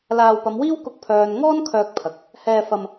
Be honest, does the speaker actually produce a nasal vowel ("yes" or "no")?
no